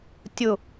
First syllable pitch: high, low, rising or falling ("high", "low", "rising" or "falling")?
falling